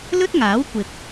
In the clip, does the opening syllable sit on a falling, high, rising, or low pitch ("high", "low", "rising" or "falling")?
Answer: high